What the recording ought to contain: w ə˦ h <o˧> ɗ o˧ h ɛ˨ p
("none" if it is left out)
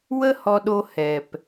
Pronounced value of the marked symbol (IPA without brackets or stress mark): ɔ˧